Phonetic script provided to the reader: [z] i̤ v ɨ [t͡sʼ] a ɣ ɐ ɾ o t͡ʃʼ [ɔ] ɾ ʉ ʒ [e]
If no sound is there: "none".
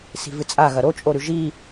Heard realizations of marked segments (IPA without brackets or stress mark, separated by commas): s, t͡sʼ, o, i